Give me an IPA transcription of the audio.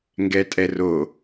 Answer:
ŋ ɡ ɛ tʼ ɛ r o

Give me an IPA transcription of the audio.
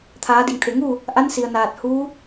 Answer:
t̪ʰ aː˩˧ d i˩ ŋ t̪ʰ e˩ ŋ uː˥˨ | ʔ a˧˥ n s i˩ ə̯ n aː˧˩ t̚ h uː˧˥

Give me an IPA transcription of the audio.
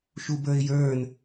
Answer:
ʃ u b ə˞ ɪ̯ j ə˞ n

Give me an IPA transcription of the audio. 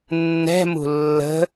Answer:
nː ɛ̤ m ṳ lː ə̤

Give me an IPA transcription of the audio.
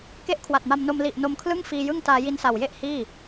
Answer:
k e˥˩ ʔ kʰ w a˨˩ t̚ m a˧ m n o˧ m l i˨˩ ʔ n o˧ m kʰ l ɯ˥˩ ŋ f iː˧ j ɯ˥˩ ŋ t aː˧ j i˧ n s a˨˩ w j e˥˩ ʔ h iː˥˩

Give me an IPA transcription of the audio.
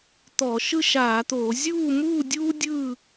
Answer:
t̪ ɔ˧˩˧ ʃ ɯ˥˨ ʃ aː˧˩˧ t̪ oː˧˩˧ zʲ uː˥˨ m uː˥˨ dʲ uː˥ dʲ ɯ˥˨

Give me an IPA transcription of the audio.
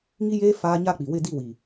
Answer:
ŋ i˦ j eː˦ f aː˦ ɲ a˦˨ k͡p i˨ w ɪ˦˨ d i˦˨ w i˨

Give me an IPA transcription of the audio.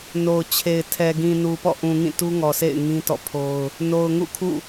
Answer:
n o˨ ʊ̯ t͡ɕʰ e˨ ɪ̯ tʰ ɛ˨ ɡ ĩ˨ n u˨ p ɔ̰˦˨ ʔ ũ˨ ŋ ĩ˦˨ t u˦ ŋ ɔ˨ sʰ ḛ˦˨ ɪ̯ ŋ ĩ˦ t ɔ̰˦˨ pʰ o˦ ʊ̯ | n o˨ ʊ̯ ŋ ṵ˦˨ kʰ ṵ˦˨

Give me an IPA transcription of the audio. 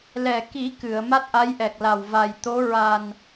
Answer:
l ɛ˨˩ k i˨˩˦ k ɨ˨˩˨ ə̯ m a˦˥ t̚ ʔ a˧˥ j ʔ ɛ˨˩ k̚ l a˨˩ w v a˨˩ j t̪ o˧˥ ɹ a˨˩ n

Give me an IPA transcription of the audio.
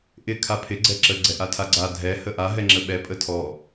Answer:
ʔ ɪ kʰ a pʰ ɪ ɡ͡ǀ ɛ ǁ ə ɡ͡ǀ ɛ ʔ a tʰ a ɡ͡ǀ a dʱ ɛ h ə ʔ a ɦ ɛ ŋ͡ǁ ə ɓ ɛ pʼ ə tʰ ɔ

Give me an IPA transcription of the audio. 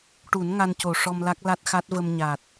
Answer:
ʈ u˨˩˦ n ŋ a˧ n c o˨˩ ʂ ɔ˧ m l a˦˥ k̚ l a˦˥ t̚ x a˦˥ t̚ v ə˧ m ɲ a˨˩ t̚

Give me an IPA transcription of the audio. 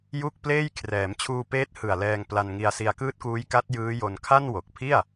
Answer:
j u˥˩ k̚ p l eː˥˩ j kʰ r ɛː˩˦ m t͡ɕʰ uː˧ p eː˦˥ t̚ h ɯ˨˩ a̯ l ɛː˧ ŋ p l a˧ n ŋ i˧ a̯ s i˧ a̯ k ɯː˦˥ t̚ k uː˦˥ j k a˦˥ t̚ j ɯː˦˥ j o˧ n kʰ a˥˩ n w o˨˩ k̚ pʰ i˥˩ a̯

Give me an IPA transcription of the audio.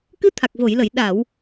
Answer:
k ɨ˧˥ t̪ʰ a˨˩ k̚ v o˨˩˨ j l ə˨˩˨ j ɗ a˨˩˨ w

